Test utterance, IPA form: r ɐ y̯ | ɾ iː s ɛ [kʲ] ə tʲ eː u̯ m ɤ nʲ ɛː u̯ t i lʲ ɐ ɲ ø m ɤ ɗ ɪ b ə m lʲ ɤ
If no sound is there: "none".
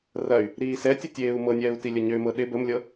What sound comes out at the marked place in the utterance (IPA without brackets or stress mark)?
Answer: tʲ